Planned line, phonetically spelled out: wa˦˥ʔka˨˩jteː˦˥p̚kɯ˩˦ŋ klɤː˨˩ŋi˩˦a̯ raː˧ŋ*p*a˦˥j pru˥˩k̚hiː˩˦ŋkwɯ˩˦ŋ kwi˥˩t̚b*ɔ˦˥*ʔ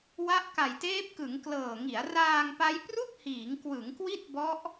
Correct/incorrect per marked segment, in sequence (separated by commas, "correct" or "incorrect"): correct, correct